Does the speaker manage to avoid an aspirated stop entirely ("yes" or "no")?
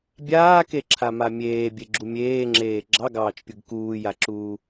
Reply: no